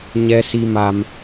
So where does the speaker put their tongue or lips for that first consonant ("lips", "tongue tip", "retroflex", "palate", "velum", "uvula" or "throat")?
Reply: palate